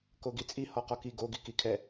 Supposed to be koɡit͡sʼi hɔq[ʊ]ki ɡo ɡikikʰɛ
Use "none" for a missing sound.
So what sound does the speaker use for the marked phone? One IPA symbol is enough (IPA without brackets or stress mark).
ɔ